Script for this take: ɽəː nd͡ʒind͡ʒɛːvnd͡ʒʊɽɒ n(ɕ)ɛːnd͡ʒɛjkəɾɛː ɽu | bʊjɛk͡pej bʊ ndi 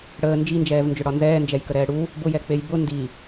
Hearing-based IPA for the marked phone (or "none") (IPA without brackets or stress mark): z